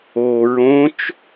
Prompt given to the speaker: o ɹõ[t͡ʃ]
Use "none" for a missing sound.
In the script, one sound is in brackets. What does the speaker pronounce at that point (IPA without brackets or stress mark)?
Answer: t͡ʃ